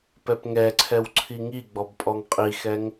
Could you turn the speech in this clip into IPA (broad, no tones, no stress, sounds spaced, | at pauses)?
p ɛ p ŋ ɛ ǀʰ ɛ w ǀʰ i ŋ i ɡ͡b ɔ b pʼ ɔ ŋ qʼ i x ɛ ŋ